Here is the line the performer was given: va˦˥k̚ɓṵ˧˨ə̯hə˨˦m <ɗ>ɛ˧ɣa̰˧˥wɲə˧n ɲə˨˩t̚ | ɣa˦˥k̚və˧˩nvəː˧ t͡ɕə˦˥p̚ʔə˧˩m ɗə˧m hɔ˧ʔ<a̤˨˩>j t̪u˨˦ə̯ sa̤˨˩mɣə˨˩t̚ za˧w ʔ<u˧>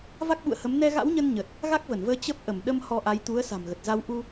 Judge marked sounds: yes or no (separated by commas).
no, no, yes